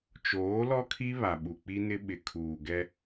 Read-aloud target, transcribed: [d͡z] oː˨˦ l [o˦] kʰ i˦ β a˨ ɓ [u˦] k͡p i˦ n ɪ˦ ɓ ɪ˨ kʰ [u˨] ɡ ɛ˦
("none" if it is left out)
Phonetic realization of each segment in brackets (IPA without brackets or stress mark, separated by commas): t͡ʃ, ɔ˦, u˨, uː˨